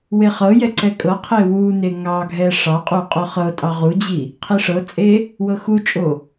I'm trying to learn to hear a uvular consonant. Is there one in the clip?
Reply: yes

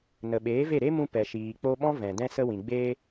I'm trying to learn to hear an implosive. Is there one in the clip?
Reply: yes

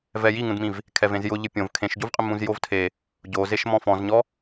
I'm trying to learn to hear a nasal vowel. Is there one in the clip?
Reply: yes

